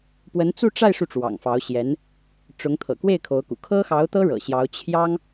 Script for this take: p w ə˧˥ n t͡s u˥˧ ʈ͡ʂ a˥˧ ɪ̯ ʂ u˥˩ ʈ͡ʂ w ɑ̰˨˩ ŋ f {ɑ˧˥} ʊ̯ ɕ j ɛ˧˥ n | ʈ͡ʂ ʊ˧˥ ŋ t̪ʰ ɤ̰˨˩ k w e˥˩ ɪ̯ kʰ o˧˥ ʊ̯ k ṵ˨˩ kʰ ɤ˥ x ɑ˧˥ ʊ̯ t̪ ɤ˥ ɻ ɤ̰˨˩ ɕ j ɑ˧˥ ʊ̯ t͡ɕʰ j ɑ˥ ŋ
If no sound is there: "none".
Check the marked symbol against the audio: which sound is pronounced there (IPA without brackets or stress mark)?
ɑ˧˥